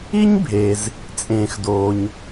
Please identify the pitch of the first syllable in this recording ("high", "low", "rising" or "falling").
high